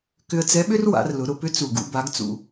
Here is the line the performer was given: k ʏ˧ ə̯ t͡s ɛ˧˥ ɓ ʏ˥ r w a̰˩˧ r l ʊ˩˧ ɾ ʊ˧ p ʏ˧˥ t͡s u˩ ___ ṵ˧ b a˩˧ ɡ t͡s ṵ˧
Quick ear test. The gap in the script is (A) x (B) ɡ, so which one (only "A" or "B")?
B